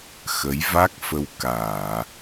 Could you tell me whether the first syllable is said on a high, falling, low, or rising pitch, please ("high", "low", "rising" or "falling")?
rising